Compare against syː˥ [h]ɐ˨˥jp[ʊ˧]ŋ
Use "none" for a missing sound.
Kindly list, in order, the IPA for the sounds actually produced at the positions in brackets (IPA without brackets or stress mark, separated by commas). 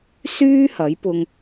h, ʊ˧